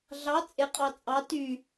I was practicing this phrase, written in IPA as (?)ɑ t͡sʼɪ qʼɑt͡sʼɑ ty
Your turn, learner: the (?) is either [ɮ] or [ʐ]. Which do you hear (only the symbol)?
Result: ɮ